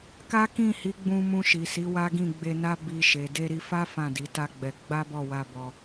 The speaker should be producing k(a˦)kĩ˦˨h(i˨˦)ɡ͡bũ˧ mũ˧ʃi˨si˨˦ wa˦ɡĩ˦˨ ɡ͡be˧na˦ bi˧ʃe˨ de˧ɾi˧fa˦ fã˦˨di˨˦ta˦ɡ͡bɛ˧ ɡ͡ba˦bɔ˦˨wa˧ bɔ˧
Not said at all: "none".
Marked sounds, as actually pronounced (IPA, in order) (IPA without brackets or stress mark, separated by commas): a˦, i˨˦